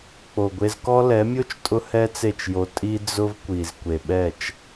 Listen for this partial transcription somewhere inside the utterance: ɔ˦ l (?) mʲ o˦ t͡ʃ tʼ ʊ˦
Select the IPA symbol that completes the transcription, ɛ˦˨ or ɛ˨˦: ɛ˨˦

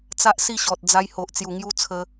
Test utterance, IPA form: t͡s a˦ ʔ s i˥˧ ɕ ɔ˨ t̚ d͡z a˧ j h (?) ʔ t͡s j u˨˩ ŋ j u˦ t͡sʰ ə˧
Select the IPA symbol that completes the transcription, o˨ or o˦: o˨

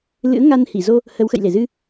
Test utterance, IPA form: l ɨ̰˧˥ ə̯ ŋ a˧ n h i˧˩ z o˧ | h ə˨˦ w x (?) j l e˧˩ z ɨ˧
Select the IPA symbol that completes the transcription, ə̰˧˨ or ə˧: ə̰˧˨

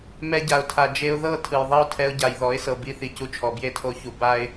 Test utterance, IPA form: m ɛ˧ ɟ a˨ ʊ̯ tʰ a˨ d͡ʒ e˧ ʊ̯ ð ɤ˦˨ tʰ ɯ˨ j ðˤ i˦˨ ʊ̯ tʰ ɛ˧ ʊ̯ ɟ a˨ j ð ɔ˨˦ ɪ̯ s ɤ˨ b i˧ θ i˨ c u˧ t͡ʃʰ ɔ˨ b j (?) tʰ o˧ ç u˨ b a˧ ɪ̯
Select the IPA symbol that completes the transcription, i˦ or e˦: e˦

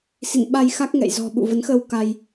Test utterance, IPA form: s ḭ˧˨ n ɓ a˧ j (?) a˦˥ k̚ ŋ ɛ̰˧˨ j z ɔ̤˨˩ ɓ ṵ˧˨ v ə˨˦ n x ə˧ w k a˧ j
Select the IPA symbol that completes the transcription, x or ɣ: x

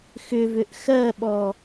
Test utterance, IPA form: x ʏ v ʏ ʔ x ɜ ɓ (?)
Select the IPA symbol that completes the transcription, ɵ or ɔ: ɔ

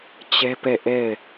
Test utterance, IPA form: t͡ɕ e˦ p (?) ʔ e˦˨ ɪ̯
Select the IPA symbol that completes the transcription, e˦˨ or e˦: e˦˨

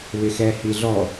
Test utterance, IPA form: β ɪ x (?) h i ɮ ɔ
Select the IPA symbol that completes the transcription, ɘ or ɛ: ɛ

